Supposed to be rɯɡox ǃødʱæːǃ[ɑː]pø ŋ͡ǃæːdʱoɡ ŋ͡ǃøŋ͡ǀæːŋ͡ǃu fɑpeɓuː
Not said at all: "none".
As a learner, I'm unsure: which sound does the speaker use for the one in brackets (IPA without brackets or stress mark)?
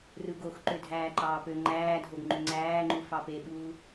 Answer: ɑː